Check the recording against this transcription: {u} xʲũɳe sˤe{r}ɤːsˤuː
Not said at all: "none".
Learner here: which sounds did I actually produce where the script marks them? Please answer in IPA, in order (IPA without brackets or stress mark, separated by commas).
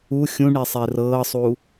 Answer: u, r